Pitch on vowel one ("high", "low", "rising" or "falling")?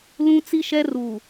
high